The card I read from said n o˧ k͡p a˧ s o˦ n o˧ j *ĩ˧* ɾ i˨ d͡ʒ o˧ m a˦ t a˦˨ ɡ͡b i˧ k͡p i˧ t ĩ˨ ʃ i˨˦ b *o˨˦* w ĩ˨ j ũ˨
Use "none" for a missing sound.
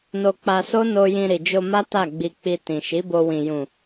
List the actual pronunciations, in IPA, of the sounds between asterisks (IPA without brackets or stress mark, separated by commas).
ĩ˧, o˧